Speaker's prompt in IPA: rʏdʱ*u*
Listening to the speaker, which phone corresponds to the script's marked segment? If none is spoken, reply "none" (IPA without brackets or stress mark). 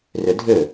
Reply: ʏ